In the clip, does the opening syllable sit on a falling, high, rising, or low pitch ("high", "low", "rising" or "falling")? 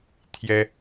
high